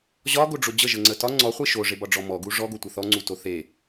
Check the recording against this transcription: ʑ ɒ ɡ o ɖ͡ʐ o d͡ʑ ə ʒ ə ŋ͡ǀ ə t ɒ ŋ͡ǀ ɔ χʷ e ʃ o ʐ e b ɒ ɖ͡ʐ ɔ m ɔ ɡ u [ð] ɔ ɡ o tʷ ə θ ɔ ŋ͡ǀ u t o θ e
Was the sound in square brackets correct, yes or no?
no